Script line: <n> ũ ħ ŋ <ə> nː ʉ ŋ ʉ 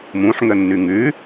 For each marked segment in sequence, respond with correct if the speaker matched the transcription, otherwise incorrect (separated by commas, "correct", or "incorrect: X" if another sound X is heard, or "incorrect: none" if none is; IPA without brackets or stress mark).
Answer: incorrect: m, correct